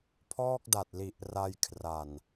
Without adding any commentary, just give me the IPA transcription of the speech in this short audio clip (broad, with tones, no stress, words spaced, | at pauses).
pʰɔː˥˩k̚da˨˩t̚li˨˩ʔ ra˧jkʰra˨˩n